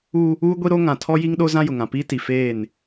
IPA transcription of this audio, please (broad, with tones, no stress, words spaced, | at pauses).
u˦ | uː˦ɡʷi˦ɾo˦ ŋã˨ tʰɔ˦ji˦ŋɗo˦ zã˦jʊ˨ŋã˨piː˦ ti˨ feː˦˨n